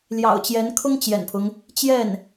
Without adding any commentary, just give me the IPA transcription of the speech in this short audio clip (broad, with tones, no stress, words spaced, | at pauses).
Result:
ljɑ̰˨˩ʊ̯t͡ɕjɛ˧˥n kʰʊ˥ŋ t͡ɕjɛ̰˨˩npʰʊ˦ŋ | t͡ɕjɛ˥˩n